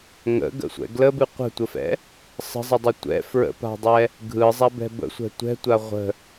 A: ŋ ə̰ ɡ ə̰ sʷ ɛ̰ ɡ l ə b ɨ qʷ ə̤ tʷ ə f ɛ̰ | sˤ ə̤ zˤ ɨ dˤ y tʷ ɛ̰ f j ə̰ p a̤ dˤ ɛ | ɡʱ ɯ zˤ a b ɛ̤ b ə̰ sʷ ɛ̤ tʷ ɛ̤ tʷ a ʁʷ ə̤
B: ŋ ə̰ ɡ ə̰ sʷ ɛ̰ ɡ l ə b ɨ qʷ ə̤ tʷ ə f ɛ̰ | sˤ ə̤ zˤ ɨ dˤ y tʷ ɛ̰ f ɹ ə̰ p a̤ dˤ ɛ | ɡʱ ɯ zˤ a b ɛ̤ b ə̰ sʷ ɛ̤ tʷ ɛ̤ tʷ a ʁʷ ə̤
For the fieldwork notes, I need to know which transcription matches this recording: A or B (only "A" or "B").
B